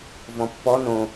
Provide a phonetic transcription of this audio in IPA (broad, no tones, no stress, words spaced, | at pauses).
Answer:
vɔ̃pːɔ nõ